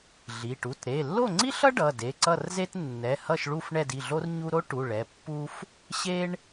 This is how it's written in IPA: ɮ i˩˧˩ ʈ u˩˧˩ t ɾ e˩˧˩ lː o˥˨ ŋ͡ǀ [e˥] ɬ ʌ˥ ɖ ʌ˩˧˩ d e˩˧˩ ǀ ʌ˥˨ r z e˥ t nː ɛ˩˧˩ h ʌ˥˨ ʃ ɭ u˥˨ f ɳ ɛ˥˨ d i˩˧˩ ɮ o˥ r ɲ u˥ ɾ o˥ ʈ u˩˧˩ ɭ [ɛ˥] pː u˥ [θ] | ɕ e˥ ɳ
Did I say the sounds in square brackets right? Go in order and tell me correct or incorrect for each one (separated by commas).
incorrect, incorrect, incorrect